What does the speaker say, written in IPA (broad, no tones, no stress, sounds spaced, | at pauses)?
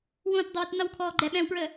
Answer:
w õ t dˤ ə w ɪ t n ʌ w kʰ ɔː ɡ͡ǃ ɛ ɓ ɛ̃ w p ɹ ə